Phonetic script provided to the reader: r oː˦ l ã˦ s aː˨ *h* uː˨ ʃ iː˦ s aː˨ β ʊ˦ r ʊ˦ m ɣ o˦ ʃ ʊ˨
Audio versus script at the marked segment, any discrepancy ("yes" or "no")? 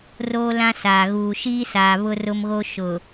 yes